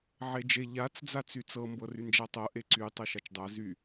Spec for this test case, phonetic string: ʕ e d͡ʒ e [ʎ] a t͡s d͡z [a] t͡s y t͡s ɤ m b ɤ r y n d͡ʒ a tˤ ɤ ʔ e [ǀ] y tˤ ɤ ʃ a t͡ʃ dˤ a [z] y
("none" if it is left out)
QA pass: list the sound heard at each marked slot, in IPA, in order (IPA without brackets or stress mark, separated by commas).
ʎ, a, ǀ, z